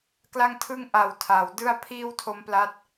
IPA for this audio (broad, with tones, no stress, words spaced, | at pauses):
kla˥˩ŋtʰɯ˥˩ŋʔa˨˩w tʰaː˩˦w dɯ˥˩a̯pʰiː˥˩w tʰo˦˥mpla˦˥t̚